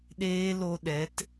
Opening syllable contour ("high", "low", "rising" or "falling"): high